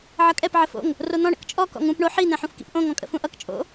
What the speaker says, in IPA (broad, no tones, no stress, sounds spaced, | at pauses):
ʕ ʌ kʼ ɛ p ʕ ə f o̰ ŋ | r o n̪ ɔ̃ ɳ ə̰ k t͡ʃʼ ɔ k ɔ̰ ŋ ũ p ɳ o ħ i n̪ ɛ̃ ħ ũ f k ḭ p ʔ õ ŋ ɔ̃ kʼ ə̰ f ũ ʔ ʌ k t͡ʃʼ o̰